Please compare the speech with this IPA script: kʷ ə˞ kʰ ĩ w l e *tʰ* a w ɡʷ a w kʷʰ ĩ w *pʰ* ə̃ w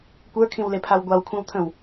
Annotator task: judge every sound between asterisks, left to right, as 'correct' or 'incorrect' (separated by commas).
incorrect, incorrect